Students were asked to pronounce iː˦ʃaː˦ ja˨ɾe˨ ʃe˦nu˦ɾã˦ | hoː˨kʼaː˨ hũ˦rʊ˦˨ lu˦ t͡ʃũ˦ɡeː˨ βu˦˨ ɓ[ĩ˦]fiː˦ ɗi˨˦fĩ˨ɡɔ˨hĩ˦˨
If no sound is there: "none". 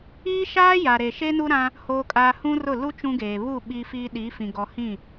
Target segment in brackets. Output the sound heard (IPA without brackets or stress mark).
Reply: i˦